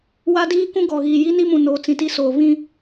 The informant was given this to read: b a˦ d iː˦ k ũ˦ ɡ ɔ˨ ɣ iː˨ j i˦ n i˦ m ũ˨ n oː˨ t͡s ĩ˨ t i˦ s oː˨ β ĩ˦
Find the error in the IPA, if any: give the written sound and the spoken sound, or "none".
b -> w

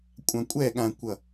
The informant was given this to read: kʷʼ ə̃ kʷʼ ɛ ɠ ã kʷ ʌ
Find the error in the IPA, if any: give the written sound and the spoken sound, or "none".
ə̃ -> ã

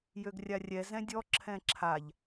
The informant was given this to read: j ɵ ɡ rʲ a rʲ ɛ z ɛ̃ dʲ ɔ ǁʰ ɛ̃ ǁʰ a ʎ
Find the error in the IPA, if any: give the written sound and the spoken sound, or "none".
ɵ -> ø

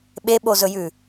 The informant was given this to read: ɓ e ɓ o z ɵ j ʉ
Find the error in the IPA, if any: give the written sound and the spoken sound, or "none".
none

